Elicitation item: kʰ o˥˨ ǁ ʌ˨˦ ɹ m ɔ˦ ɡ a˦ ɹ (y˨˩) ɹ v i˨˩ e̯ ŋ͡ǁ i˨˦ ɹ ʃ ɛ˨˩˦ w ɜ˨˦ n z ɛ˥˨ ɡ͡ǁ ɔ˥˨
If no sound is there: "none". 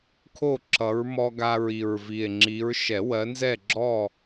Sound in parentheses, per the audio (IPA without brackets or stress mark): i˨˩